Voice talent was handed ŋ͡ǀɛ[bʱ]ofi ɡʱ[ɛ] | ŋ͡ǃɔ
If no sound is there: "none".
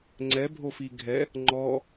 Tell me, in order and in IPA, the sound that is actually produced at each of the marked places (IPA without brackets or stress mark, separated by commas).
bʱ, ɛ